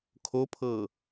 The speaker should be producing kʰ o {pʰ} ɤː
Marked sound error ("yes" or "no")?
no